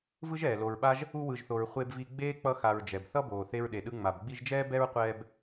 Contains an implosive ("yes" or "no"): yes